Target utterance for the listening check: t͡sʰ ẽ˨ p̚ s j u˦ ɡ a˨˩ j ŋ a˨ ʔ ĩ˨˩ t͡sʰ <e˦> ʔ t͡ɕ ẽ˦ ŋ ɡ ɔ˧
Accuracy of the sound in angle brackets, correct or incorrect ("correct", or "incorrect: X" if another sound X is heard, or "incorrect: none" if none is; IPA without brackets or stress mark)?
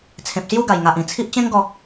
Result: incorrect: i˦